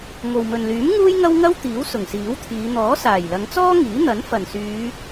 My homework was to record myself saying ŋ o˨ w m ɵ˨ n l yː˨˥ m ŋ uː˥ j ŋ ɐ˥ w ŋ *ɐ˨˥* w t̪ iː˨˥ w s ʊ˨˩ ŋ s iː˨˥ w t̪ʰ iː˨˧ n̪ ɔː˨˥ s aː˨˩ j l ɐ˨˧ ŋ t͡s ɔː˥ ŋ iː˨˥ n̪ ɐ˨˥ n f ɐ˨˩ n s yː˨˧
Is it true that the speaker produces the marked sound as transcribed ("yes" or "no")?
no